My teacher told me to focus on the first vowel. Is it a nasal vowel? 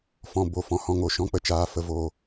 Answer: yes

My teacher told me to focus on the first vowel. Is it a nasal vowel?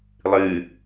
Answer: no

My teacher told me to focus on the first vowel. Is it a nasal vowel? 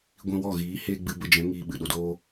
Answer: yes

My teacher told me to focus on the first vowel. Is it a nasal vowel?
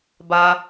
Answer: no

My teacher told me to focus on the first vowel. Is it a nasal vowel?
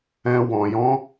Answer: yes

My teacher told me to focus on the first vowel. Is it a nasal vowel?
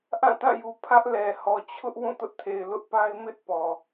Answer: yes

